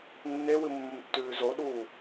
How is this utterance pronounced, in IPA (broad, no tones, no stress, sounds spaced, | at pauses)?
nː e w ɨ mː ɵ m tː ʉː z o ɗ uː